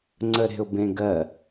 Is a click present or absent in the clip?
present